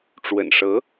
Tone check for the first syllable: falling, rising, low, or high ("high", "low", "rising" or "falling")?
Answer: low